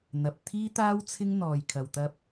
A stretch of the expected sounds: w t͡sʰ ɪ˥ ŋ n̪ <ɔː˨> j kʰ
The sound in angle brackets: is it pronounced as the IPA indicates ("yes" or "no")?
yes